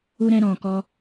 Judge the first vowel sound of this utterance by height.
high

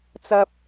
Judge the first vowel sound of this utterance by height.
low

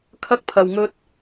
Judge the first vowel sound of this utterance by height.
low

